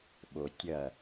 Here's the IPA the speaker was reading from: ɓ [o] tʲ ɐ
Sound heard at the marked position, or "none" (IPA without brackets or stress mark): o